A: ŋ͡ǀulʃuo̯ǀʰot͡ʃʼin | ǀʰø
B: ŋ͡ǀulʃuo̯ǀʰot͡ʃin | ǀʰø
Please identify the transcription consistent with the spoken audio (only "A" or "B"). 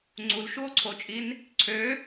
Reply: A